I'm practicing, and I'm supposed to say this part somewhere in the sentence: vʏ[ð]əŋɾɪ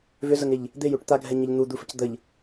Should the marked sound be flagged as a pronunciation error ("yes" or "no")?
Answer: yes